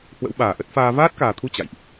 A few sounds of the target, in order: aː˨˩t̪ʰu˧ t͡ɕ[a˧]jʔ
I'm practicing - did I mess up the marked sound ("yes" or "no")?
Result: yes